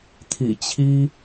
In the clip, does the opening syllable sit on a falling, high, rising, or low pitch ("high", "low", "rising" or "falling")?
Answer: low